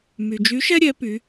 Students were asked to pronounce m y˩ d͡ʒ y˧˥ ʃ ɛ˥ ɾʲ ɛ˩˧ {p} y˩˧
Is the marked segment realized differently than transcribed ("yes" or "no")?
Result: no